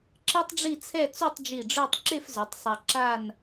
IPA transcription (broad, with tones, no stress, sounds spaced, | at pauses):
ǁ e˥ tˤ ɖ͡ʐ i˥˧ t͡sʰ ɛ˥˧ t͡s u˥˧ tˤ d͡ʒ i˧˩ ɖ͡ʐ œ˥˧ tˤ ǁ e˥˧ f z œ˩˧ tˤ sˤ a˧ ǁ a˥˧ n